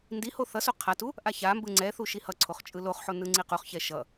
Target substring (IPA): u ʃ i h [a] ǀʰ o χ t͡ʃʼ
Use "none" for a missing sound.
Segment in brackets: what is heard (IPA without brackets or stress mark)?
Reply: ʌ